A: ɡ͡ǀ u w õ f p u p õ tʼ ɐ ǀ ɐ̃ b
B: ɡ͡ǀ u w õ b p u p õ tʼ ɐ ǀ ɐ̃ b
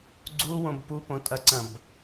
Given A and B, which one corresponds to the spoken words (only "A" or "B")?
B